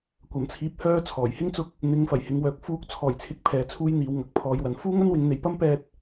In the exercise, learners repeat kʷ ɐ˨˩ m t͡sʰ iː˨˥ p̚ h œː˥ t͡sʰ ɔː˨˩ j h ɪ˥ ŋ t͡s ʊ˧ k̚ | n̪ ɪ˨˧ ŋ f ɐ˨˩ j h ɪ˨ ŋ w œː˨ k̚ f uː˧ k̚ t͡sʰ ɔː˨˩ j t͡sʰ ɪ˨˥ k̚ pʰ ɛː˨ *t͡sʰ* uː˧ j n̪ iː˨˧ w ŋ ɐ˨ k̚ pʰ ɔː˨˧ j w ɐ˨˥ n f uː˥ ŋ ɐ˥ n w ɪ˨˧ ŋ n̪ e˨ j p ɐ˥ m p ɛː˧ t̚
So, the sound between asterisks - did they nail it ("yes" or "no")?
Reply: yes